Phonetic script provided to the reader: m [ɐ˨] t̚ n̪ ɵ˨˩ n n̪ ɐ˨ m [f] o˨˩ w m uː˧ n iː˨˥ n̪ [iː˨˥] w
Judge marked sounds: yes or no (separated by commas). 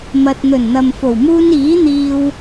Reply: yes, yes, no